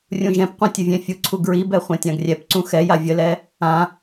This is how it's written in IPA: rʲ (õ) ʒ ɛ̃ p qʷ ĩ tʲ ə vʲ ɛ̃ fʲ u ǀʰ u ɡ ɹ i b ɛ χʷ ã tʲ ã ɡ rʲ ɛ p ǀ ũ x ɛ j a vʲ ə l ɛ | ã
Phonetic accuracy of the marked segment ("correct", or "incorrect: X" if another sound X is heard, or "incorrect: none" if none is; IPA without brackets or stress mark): incorrect: ũ